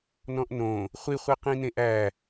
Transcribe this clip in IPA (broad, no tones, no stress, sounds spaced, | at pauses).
n ɔ̃ ʔ n õ | χʷ i χʷ i q ĩ n ẽ ʔ æ